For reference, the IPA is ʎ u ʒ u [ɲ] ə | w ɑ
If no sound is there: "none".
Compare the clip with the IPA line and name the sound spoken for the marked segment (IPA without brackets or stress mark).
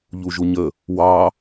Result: ɲ